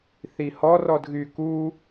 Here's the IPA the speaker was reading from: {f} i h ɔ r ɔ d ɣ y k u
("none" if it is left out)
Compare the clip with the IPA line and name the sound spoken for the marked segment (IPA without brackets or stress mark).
θ